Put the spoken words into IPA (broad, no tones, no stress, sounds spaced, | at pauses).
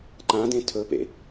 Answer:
ǃ ã d ẽ tʰ ɵ p ḛ